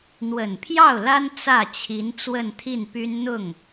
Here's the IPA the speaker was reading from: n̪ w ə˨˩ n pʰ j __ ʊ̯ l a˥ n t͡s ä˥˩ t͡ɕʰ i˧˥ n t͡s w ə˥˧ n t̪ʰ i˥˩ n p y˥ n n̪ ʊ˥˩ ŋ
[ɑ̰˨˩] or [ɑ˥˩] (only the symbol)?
ɑ˥˩